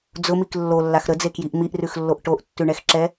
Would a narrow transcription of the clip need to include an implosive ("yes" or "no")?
no